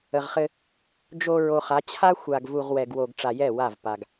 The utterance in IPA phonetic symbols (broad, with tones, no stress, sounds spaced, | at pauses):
ə˨ ʁ χ ɘ˦ | d͡ʒ o˨ ɹ o˨ χ a˨˦ t͡ɕʰ a˦ xʷ a˨ ɡ v u˨ ʁ w ɛ˨ ɡ w o˨ ɡ ʈ͡ʂ a˨ j ɛ˦˨ w a˦˨ v p a˨ ɡ